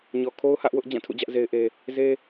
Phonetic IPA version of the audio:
ɲ ɔ˨ kʰ o˦ ʊ̯ h ä˦ ʔ w ʊ˦ ʔ d͡ʑ ã˦˨ tʰ ṵ˦˨ d͡ʑ ä˦ ʔ z e˦ ɪ̯ ʔ e˦ | z e˦

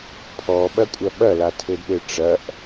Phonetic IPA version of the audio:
pʰ ɔ ɓ ɐ kʷʼ ɐ ɓ ɐ l a tʰ ɘ d ɓ ɘ ʈ͡ʂ ɐ ʔ

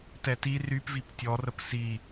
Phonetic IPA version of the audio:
t ɛ t i r y p v i p tʲ ɔ r ə p s i

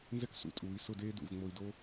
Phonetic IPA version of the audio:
n z ɛ˥ k s ṵ˩˧ tʼ uː˩˧ i̯ s ʊ˥˧ d eː˥ d ṵ˧˩ v ŋ͡m o˧ i̯ d o˥

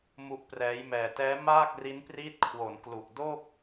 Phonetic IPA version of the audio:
m u˦˥ ʔ p r ɛː˦˥ j m ɛː˧ t ɛː˦˥ m aː˥˩ k̚ r i˦˥ n p r iː˦˥ t̚ kʰ w o˩˦ n k l u˨˩ ʔ d o˥˩ k̚

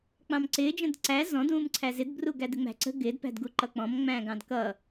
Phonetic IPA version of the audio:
k͡p ɑ̃ m ǀ ɪː d͡ʒ ə̃ d ǀ æ z ɔ̃ d ũː m ǀʰ æ z ɪ d b r u ɡ æ d ɪ ŋ͡m æ̤ ǀ ə̤ ɡ ɪː d p æ̤ d ɡ u ǃ ʌ k͡p ɔ̃ m ŋ͡m æ̃ː ɡ ɑ̃ d k ʌ

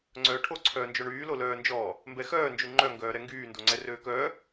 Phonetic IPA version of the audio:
ŋ͡ǀ œː ʈʰ o ǀʰ œː n d͡ʒ o ɳ yː l o l œː n d͡ʒ ɔː | m b ɛ x œː n d͡ʒ y ŋ͡ǃ œ ŋ ɡ œː ɾ ɛ ŋ ɡ yː n d o ŋ͡ǀ ɛ r øː k œː

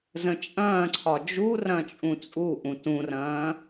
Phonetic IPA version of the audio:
z ə̃ t͡ʃʼ ɐ̃ː ǀʰ ɒ d͡ʒ u r ɐ̃ t͡ʃʼ ũ t͡sʼ u ʔ ũ t ũ r ɐ̃ː

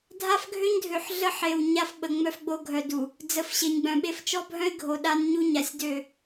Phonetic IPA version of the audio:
dʱ a˦ f ɡʱ ø˦ ɲ dʱ ø˨ ħ ɮ ə˦ ħ e˨ w ɲ a˦ f ɓ ə˨ ŋ͡m œ˦ f ɡ͡b o˦ ɡʱ œ˨ d u˨ | d͡z ə˨ f ɕ e˨ ɲ ɡ͡b œ̃˨ ɓ e˦ f t͡ʃ ɔ˦ bʱ œ̃˦ ɪ̯ ɡʱ o˨ ɗ a˦ n ɲ u˦ ɲ a˨ sʲ d ø˦˨

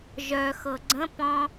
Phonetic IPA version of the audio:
ʒ œ x ɤ ɡ͡ǀ ə̃ p ɔ̃

